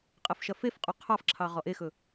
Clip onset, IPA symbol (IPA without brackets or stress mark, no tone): qʼ